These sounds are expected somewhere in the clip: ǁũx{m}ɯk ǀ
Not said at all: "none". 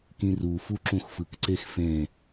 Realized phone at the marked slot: f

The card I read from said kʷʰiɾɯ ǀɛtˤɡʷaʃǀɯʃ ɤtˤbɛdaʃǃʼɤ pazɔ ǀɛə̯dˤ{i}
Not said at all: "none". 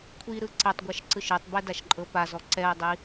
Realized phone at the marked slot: i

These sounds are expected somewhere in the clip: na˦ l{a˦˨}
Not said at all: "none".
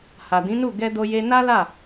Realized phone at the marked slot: a˦˨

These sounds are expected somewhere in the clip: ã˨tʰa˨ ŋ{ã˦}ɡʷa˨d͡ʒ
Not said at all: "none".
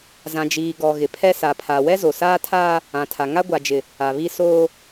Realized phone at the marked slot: a˦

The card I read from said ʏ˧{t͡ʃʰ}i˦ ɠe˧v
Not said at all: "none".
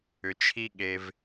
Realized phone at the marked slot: t͡ʃʰ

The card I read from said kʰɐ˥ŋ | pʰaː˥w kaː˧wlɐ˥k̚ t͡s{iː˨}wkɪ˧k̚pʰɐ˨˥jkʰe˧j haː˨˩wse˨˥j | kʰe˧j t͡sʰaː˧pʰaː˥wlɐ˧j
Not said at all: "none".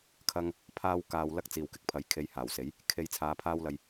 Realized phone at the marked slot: iː˨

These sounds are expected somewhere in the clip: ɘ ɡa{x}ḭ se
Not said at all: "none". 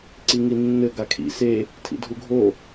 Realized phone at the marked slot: kʰ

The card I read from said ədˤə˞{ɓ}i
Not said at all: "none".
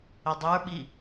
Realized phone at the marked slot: ɓ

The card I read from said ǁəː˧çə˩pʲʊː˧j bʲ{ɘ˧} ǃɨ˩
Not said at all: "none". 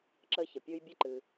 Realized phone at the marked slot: ɘ˧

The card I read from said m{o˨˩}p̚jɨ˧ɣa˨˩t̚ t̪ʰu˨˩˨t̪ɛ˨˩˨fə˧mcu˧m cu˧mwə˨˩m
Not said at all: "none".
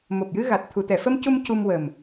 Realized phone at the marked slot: o˨˩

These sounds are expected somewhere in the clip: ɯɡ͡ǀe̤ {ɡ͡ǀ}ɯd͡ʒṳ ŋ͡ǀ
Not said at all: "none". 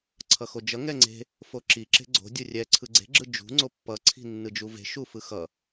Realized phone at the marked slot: ɡ͡ǁ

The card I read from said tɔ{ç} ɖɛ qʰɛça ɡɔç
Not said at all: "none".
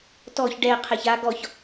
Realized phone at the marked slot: ç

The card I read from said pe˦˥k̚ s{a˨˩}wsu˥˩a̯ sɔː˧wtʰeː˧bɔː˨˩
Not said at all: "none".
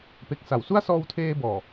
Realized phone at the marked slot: a˨˩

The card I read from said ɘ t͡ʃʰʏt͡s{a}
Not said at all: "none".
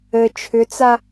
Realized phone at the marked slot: a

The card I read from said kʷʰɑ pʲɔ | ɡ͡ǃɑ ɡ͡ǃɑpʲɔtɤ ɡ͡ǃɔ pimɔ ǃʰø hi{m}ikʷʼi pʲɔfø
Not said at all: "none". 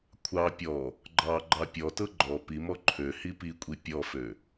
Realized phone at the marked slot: p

